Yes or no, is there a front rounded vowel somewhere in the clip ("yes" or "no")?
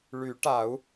yes